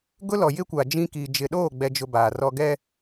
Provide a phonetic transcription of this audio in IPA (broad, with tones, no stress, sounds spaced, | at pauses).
ɡ ʊ˦ l ɔ˨ j ɪ˦ kʷ a˨ d͡ʒ ĩ˦ k i˨ d͡ʒ ɪ˨ ɗ oː˦˨ ɡ͡b ɛ˨ d͡ʒ ʊ˨ b aː˨ r ɔ˦ ɡ ɛ˦